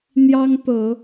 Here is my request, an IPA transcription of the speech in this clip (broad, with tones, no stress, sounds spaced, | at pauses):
n̪ j ɑ˦ ŋ t̪ ɤ˨˦